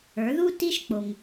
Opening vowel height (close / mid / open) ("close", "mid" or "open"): mid